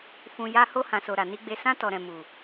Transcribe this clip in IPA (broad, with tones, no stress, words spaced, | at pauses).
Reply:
fũ˨ ja˧ ho˧hã˨so˨ ɾa˨ni˧ɡ͡be˧ sã˧tɔ˨ ɾɛ̃˨ mu˨